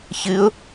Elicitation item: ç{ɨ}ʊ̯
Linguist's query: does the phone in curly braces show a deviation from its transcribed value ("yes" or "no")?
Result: no